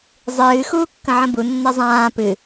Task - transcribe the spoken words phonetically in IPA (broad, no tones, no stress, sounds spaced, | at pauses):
zˤ ɨː x uː kː ə̃ ʕ ə̃ b u nː ɛ zˤ ãː p ɨ